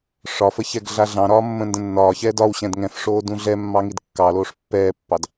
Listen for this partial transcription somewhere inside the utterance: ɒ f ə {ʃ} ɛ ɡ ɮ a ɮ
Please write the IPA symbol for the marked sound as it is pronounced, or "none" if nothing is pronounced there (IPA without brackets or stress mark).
ç